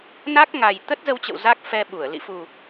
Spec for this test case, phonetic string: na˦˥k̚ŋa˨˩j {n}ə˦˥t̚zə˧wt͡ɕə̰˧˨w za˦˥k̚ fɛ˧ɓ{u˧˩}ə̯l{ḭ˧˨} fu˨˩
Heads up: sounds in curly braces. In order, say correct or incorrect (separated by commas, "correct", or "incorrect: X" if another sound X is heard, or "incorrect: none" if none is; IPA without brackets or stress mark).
incorrect: t̪, correct, correct